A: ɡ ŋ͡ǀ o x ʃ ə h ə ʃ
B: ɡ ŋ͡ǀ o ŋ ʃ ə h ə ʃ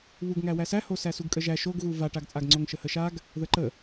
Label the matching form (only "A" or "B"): B